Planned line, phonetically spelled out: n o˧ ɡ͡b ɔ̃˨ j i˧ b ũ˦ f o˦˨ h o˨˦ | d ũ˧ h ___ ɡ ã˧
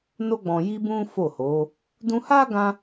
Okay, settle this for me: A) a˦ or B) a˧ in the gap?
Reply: A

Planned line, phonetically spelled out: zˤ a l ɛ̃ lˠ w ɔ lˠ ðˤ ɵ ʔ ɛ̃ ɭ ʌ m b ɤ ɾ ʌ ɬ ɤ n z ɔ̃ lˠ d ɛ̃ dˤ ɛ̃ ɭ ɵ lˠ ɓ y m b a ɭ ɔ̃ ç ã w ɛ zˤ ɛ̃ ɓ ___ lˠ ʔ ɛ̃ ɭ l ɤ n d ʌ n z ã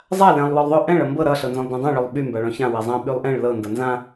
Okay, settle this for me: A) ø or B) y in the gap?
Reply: B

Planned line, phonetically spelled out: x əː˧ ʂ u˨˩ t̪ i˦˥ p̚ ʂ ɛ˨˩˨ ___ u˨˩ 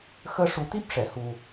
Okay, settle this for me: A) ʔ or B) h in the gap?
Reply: B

